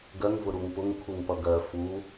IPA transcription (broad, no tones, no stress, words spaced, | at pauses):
ɡɜŋ vʊɾuŋpʊŋkʰuŋ pʌɡɜ fu